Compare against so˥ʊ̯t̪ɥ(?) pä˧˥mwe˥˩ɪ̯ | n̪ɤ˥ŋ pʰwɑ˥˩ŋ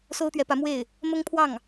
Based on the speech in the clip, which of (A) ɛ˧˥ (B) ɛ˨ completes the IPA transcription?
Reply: A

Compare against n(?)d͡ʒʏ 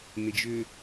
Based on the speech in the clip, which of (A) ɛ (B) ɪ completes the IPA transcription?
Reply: B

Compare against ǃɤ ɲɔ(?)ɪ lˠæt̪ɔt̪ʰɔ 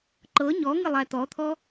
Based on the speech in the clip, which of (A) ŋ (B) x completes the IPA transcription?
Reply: A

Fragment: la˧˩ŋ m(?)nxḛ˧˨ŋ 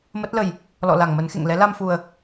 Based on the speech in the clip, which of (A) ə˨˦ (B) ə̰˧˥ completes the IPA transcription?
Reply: A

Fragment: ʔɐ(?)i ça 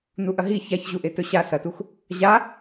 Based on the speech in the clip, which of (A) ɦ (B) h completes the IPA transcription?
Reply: A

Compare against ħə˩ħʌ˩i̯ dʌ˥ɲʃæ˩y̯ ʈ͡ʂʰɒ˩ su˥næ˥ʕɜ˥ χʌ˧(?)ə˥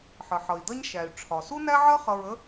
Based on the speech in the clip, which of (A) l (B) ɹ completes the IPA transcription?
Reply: B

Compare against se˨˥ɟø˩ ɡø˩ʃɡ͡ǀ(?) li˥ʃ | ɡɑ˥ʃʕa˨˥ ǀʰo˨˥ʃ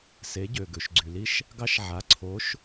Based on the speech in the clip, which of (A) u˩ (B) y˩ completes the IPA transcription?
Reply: B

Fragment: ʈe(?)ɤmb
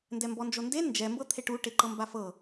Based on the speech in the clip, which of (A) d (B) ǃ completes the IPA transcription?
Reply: B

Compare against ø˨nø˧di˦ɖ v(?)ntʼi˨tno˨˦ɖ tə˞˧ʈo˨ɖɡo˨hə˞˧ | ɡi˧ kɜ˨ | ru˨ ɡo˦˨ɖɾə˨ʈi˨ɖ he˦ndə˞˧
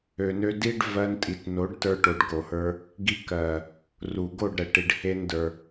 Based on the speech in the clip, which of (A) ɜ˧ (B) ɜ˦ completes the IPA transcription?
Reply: A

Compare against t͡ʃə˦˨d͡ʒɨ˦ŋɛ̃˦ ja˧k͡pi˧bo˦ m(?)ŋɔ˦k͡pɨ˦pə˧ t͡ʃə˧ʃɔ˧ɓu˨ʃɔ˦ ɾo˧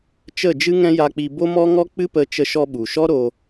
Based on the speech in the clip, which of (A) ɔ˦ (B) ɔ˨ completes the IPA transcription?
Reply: A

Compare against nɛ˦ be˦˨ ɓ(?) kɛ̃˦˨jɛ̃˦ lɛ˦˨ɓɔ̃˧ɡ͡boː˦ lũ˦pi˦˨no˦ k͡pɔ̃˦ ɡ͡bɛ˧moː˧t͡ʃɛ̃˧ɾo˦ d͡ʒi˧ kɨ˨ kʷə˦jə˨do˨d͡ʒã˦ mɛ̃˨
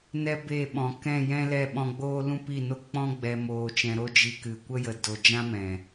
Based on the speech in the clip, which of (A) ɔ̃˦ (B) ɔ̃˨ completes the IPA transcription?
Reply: B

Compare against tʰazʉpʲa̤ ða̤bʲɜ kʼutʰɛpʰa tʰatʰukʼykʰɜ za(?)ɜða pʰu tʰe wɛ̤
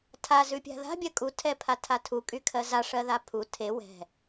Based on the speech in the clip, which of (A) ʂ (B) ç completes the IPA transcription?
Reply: A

